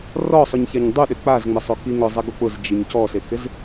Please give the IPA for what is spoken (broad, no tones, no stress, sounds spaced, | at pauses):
r ɔ sˤ ʊ ɲ ç a ɲ dˤ u ɗ ɪ k͡p a z ŋ͡m ɪ sˤ o k i ŋ ʊ zˤ ɛ ɡ o k͡p ʊ z d͡ʒ i ɲ c ɔ s e k ɪ z